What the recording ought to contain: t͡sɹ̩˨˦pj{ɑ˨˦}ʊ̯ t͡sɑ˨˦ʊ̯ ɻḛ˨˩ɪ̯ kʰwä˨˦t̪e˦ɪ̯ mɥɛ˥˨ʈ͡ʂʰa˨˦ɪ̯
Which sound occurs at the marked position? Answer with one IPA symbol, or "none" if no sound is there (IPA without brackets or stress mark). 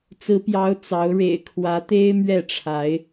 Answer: ɑ˨˦